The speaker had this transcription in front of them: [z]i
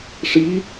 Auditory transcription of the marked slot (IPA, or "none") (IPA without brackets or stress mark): ʂ